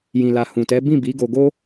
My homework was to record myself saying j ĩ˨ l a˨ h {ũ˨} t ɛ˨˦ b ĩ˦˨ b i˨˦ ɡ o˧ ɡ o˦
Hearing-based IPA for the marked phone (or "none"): ũ˨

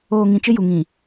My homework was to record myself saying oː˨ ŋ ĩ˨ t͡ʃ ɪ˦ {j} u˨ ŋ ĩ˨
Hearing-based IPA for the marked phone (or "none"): j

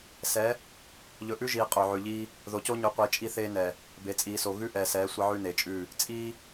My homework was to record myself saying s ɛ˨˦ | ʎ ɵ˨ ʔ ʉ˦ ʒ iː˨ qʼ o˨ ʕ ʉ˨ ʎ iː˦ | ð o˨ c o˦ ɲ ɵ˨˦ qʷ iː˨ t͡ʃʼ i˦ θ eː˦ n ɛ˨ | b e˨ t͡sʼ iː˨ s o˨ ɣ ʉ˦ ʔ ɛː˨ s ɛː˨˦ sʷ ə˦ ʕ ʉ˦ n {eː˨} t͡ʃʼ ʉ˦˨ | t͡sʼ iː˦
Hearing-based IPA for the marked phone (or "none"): e˨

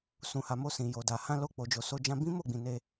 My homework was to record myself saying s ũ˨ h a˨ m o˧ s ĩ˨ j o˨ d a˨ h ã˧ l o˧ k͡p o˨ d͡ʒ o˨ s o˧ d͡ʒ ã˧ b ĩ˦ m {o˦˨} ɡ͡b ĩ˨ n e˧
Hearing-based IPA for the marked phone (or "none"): o˦˨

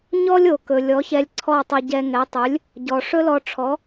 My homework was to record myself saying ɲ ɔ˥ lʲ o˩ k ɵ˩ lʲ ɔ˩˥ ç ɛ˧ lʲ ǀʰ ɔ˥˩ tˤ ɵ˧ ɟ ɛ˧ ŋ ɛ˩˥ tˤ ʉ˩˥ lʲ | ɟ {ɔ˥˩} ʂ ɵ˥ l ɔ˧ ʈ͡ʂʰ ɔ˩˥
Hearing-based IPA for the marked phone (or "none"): ɔ˩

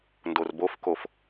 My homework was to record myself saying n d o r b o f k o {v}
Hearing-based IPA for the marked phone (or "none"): f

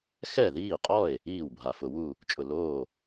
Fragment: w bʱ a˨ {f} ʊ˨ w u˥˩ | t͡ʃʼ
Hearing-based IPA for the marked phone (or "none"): f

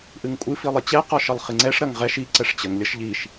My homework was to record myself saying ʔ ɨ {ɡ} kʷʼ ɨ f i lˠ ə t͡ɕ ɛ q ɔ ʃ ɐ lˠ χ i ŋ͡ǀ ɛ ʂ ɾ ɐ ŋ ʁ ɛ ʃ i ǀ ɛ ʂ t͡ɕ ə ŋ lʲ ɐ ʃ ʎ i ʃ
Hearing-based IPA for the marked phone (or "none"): ŋ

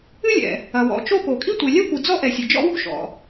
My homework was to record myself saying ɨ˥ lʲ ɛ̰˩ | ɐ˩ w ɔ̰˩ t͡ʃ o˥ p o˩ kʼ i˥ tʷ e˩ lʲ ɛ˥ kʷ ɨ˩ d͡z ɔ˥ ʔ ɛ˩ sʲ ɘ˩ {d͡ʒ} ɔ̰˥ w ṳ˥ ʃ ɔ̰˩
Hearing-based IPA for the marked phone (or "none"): d͡ʒ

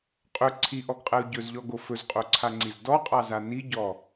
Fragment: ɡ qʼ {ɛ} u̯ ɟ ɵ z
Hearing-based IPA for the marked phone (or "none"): ɛ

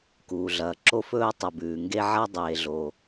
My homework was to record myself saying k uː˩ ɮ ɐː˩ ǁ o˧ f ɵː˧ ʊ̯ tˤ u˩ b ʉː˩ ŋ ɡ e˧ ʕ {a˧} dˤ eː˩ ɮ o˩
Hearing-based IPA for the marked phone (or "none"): a˧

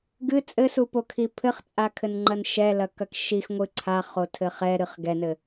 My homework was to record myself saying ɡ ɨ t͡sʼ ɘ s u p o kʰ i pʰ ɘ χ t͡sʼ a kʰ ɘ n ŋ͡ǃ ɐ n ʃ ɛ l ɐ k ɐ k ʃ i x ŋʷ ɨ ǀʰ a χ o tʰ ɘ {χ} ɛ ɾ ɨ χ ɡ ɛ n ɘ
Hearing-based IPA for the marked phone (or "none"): χ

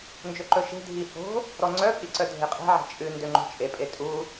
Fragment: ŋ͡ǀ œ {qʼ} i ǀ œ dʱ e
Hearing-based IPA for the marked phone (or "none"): pʼ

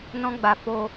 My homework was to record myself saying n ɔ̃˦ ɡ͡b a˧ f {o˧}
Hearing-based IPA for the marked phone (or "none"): o˧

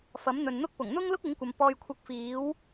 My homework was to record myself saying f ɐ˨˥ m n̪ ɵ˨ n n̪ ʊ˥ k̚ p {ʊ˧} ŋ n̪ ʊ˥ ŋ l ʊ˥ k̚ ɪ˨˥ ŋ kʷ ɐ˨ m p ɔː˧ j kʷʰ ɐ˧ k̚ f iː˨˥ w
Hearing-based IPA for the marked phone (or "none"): ʊ˨˩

